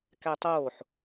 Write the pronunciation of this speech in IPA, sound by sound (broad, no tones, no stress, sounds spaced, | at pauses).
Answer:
k æ tˤ oː ħ